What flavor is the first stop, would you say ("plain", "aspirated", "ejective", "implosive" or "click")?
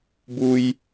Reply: plain